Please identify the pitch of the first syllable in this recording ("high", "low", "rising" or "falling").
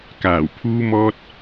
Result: low